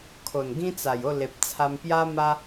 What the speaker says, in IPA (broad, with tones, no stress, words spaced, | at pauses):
kʰo˨˩nɡĩ˦t͡sa˨˩jo˥˧ le˨p̚t͡sʰa˧mpja˦ma˦